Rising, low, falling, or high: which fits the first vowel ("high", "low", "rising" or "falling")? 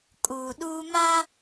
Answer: low